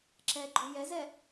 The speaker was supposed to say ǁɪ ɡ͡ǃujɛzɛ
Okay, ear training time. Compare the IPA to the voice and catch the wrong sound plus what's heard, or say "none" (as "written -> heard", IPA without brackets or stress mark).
ɪ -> ɛ